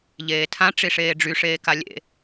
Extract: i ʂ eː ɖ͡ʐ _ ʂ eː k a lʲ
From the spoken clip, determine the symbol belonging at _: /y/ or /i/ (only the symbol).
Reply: y